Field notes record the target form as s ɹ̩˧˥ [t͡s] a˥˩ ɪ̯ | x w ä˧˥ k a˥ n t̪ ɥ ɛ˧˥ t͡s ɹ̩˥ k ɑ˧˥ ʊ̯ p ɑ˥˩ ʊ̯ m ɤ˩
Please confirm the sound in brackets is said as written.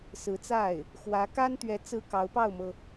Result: yes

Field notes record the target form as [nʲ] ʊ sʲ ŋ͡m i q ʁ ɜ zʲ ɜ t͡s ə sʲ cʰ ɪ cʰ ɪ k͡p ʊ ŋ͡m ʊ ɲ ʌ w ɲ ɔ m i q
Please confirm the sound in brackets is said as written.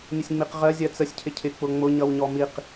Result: yes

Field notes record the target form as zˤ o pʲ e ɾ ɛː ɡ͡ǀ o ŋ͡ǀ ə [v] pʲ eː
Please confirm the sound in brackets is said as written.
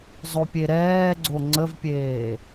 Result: yes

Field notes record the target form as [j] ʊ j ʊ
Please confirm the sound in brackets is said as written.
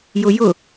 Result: yes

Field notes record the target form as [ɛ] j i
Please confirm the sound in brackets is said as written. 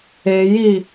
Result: no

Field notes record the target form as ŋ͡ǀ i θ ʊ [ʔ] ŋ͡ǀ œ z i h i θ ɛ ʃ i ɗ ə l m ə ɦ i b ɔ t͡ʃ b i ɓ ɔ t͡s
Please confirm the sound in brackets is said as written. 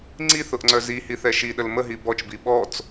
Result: yes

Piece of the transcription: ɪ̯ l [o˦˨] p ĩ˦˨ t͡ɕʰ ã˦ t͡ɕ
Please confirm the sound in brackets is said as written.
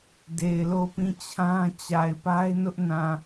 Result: yes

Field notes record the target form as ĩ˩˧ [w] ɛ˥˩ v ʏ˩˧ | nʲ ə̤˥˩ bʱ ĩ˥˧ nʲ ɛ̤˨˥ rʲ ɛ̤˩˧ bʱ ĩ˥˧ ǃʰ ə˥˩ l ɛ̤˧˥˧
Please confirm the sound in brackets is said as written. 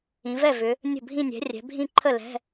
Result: no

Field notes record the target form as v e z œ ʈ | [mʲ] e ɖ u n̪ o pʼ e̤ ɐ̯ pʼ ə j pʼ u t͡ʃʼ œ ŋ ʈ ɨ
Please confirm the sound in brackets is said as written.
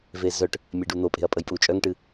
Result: yes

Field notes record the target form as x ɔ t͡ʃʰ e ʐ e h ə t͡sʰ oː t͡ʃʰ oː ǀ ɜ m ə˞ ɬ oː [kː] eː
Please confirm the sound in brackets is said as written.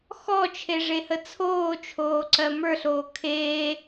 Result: no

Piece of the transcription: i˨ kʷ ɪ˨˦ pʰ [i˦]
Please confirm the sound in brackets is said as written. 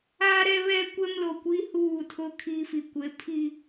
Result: yes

